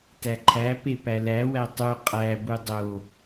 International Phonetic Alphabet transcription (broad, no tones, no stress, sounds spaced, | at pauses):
t æ ǃʰ æ p e p æ l æ w æ tˤ u qʼ æ b u dˤ o